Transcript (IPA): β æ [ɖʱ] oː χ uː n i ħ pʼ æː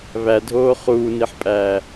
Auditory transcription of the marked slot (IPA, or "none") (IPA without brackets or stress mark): dʱ